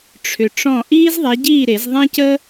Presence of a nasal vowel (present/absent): present